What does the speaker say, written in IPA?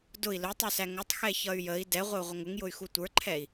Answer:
d ʊ i̯ l ʊ tˤ u s æ ŋ ʊ tˤ x ɛ ç ʌ y̯ j ə i̯ d ɛ ʁʷ ə u̯ ʁʷ ə ŋ ʊ ŋ j ʊ y̯ x u tʷ ə˞ ǃʰ ɛ i̯

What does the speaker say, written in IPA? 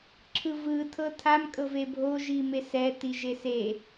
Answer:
ǁʰ ɯ v ɯ tʰ ɤ tʰ a m kʼ ɤ v e bʱ o ʒ i m e s ɛ t i ʒ e s e

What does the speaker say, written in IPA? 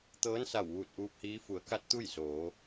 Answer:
t̪ ɤː˧˥ n s a˧˩ w ʋ uː˧˩ t̚ ʔ uː˧ p̚ h iː˧˥ f u˩˧ ə̯ k a˧ t̚ t̪ u˥˨ j s oː˩˧

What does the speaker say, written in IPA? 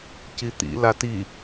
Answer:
c i t̪ ḭ l a t i

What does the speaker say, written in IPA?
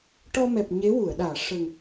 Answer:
ʈ ɔ˧ m ɛ˨˩ p̚ ɲ e˧˥ w u˨˩˨ ə̯ ɗ aː˨˩˨ ʂ ə˨˩ ŋ

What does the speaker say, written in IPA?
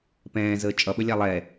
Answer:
p ɛ̃ː z əː t͡ʃʼ ʌ ɓ ə lʲ a lˠ ɛ

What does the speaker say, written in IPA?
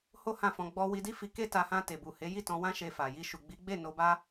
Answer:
h o˦ h ã˦˨ f ɔ̃˧ ɡ͡b ɔ˧ w i˧ d i˦ f i˧ k e˦ t a˧ h ã˧ t e˨ b u˨ h e˨˦ j i˦˨ t ɔ̃˧ w ã˦ ʃ e˧ f a˨ j i˧ ʃ u˨ ɡ͡b i˨˦ ɡ͡b e˦˨ n o˧ b a˦

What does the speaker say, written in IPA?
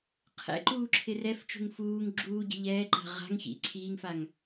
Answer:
qʰ ɛ̰ ǃ uː ǁʰ ɪ r ɛ f t͡ʃ ṳ ŋ f uː ŋ ɡ͡ǁ uː ɟ ɛ̤ ʎ ɛː ǃ a̤ ʁ a̤ ŋ ç ḭ ǀʰ iː ŋ f a ŋ

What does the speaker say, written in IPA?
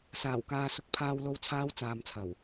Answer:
s aː˨˩ w k aː˨ s ʊ˨˥ k̚ pʰ aː˨ w l o˨ w t͡sʰ aː˨˧ w t͡s aː˨ m t͡sʰ ɐ˨˩ w

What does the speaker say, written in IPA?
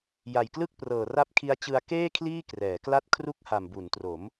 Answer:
j a˨˩ j k l ɯ˥˩ k̚ p r ɤː˨˩ r a˦˥ p̚ kʰ i˦˥ a̯ t͡ɕ ɯ˧ a̯ k eː˥˩ kʰ l iː˥˩ k r ɛː˩˦ k l a˥˩ t̚ kʰ r u˥˩ k̚ h a˨˩ m b u˩˦ n t r o˩˦ m

